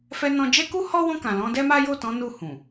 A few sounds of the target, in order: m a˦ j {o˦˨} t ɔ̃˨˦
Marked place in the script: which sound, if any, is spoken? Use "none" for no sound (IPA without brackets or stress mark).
o˦˨